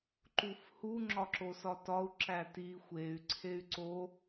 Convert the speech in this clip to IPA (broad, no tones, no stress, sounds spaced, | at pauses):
ǃ u f h u ŋ͡ǁ ɒ ǁ o s ɒ t ɒ u̯ ǁ æ t i xʷ e y̯ ǀʰ e y̯ ǀ o